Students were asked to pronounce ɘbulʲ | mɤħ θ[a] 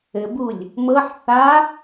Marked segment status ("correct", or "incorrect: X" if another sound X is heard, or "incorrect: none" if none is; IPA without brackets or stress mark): correct